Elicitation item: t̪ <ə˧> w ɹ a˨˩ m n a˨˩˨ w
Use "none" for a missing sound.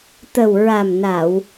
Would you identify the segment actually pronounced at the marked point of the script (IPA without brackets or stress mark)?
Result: ə˨˩